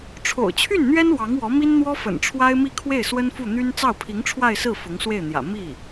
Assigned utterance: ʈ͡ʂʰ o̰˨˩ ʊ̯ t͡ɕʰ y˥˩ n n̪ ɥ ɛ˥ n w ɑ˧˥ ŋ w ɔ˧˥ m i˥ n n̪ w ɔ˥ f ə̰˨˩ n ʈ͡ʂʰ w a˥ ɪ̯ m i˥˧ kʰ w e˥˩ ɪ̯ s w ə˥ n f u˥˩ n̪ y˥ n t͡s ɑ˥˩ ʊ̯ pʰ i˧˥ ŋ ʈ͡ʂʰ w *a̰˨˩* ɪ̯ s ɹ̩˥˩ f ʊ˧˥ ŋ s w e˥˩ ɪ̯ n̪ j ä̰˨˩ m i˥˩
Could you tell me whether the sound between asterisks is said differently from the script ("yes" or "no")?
yes